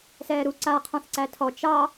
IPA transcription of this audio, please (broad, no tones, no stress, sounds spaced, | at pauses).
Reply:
s ɛː ɾ u ǀ a qʰ ɔ̃ θ ǀ æ tʰ ɔ t͡ʃ ɑ